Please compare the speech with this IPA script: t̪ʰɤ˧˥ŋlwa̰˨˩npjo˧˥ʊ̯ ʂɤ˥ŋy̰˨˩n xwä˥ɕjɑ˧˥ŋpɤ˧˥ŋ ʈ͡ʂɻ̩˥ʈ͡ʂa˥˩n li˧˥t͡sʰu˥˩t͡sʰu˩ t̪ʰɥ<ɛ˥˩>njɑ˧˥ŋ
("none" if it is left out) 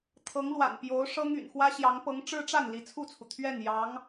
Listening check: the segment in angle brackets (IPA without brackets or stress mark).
ɛ˥˩